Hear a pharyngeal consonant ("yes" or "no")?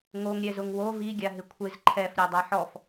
yes